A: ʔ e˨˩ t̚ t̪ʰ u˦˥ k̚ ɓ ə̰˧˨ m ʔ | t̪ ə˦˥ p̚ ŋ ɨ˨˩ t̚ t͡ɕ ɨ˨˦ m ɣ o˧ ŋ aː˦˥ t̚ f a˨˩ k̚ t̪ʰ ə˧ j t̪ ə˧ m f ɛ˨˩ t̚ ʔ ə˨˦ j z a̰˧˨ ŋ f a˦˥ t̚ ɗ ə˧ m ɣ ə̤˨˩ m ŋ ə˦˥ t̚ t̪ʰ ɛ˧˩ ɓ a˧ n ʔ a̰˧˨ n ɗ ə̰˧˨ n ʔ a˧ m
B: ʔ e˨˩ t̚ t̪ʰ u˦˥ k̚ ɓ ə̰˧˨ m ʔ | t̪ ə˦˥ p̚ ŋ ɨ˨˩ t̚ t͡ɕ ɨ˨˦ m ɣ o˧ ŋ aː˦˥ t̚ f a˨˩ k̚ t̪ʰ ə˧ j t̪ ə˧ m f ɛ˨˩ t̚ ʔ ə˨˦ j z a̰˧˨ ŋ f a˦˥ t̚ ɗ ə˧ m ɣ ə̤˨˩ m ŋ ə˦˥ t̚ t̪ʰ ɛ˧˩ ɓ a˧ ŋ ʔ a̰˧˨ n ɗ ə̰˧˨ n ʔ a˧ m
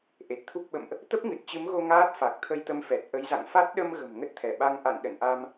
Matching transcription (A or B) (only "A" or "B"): B